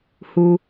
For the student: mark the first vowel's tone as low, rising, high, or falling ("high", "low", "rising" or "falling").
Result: low